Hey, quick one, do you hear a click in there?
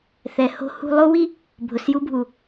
no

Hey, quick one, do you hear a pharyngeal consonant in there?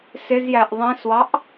no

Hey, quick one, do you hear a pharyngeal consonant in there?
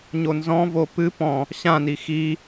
no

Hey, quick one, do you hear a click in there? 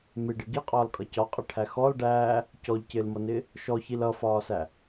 no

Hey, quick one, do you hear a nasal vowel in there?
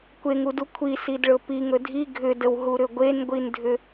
no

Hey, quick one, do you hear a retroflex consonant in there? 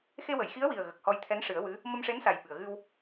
yes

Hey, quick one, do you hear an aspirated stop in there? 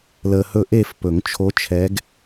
yes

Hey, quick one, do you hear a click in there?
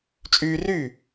no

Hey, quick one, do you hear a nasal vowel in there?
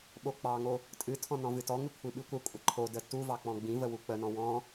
yes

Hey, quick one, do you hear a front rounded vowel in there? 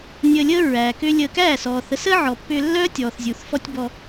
yes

